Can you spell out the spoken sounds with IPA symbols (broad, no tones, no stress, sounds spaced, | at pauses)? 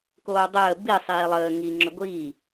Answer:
k oː dˤ əː b i sˤ iː lˠ əː ŋ i ŋ͡ǁ ʏ ɡʷ iː